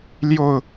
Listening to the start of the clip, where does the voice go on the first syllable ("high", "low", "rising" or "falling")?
falling